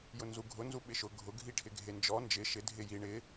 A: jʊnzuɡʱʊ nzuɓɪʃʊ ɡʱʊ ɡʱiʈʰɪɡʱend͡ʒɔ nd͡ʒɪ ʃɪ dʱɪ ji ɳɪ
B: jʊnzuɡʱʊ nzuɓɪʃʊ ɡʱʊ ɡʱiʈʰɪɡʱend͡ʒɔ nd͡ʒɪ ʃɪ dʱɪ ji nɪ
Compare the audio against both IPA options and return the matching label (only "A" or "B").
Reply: A